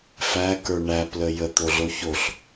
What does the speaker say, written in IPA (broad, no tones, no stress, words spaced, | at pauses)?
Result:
fækə˞ ɳæplə jət̪oɮo çoɬ